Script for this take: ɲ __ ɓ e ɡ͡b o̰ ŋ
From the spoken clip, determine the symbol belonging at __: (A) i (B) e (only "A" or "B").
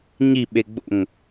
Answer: A